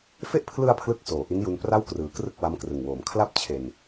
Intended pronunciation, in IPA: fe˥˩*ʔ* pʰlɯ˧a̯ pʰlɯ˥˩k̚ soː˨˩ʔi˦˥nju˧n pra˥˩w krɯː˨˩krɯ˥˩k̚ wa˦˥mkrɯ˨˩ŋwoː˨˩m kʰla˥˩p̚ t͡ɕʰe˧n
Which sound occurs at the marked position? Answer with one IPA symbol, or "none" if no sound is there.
ʔ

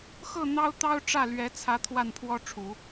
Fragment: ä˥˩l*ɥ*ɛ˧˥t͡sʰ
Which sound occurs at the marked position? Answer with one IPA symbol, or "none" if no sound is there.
ɥ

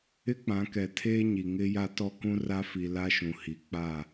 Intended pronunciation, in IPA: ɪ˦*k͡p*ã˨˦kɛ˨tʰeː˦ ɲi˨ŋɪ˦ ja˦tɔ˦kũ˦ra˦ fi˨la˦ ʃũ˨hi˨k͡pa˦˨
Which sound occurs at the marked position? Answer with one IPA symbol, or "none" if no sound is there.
k͡p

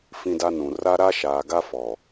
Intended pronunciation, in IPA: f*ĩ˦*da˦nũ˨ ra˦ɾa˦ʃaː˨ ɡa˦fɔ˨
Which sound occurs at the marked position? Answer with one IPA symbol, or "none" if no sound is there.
ĩ˦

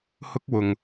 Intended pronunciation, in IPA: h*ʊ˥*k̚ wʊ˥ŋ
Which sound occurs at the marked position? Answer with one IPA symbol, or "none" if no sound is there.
ʊ˥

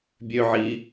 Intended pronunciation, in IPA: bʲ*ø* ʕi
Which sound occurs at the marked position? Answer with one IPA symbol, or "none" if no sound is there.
ø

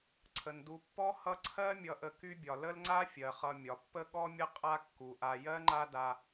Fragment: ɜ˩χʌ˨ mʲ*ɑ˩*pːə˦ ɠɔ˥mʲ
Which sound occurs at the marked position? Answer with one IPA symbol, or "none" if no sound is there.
ɒ˩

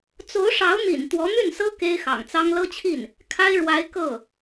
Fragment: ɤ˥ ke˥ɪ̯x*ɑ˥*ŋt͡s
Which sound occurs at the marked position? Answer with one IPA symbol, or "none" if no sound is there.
ɑ̰˨˩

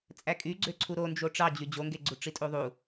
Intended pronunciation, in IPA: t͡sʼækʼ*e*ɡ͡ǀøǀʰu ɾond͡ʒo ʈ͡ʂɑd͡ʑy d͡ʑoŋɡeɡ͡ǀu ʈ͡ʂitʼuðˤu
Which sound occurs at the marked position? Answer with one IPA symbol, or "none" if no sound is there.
y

